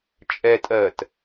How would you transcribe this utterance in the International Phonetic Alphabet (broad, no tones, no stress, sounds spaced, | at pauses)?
t͡ʃʼ ɛ tʼ ɜ t